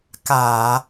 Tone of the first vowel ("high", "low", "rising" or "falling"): low